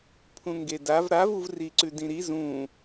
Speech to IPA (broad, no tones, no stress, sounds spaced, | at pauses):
pʰ ũ ŋ ɡ e d a v ɾ a v u v r i ǀ ʉ d ĩ ɾ i z ũ